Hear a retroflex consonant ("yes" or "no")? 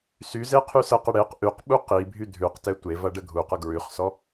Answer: yes